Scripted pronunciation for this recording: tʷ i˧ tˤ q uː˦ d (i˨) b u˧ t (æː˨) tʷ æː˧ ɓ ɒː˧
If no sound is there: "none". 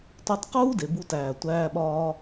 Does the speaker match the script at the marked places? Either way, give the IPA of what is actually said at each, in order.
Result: e˨, æː˨

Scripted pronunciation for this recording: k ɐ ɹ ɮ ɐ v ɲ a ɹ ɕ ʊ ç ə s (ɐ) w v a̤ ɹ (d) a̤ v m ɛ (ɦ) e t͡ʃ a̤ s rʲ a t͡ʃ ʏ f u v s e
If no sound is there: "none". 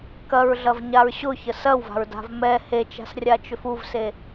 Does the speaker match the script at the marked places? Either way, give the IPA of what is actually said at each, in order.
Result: ɐ, d, h

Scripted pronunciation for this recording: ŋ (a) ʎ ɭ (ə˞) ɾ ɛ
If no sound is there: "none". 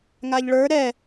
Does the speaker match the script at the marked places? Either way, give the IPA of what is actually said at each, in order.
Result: a, ə˞

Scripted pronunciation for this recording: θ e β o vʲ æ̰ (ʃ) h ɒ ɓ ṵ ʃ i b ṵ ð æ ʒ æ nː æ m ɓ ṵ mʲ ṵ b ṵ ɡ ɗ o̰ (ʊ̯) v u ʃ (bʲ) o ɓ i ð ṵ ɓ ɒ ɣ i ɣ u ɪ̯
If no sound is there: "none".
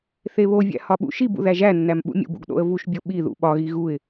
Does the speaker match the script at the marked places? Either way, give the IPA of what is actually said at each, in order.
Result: none, ə̯, bʲ

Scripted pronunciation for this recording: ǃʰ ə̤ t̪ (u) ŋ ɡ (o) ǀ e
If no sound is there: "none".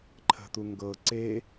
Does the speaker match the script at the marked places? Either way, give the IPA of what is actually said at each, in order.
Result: u, ɤ

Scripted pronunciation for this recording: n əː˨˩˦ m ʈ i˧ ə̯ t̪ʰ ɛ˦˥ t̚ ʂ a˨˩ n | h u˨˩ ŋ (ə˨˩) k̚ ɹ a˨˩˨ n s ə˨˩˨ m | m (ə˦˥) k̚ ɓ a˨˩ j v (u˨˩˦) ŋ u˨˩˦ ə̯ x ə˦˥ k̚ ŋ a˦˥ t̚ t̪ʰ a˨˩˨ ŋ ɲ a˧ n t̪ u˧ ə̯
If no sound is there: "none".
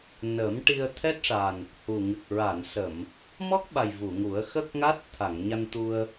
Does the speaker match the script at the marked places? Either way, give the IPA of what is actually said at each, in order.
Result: ɨ˨˩, ɔ˦˥, u˨˩˨

